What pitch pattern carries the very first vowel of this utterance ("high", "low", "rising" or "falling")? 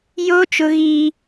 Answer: high